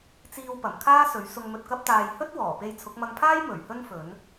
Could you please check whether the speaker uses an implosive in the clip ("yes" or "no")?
no